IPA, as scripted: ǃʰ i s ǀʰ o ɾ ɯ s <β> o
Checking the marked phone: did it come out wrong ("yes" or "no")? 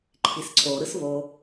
no